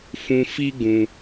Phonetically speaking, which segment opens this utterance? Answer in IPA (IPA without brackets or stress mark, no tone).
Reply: f